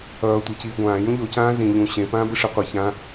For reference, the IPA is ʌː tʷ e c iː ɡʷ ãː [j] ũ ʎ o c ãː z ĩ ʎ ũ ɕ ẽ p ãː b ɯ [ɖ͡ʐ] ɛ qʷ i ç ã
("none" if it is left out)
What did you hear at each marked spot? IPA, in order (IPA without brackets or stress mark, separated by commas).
j, ʂ